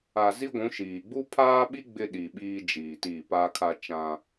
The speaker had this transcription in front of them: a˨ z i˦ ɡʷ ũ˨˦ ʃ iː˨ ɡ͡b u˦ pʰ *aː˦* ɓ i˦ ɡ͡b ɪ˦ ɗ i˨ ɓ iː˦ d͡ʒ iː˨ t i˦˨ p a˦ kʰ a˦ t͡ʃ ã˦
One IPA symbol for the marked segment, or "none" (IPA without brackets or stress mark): aː˦